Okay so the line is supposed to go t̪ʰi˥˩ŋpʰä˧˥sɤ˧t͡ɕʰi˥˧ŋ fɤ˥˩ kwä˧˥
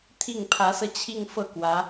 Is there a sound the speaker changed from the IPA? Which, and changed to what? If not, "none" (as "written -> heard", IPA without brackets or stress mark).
none